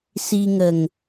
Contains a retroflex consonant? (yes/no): no